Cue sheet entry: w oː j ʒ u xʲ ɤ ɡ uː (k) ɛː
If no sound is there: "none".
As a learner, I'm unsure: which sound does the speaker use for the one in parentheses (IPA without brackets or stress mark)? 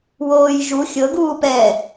p